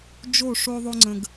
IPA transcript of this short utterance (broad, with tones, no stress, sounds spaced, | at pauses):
d͡ʒ o˦˨ ʂ o˧ ðˤ o˧ ŋ͡ǀ ə̃˨ ɡ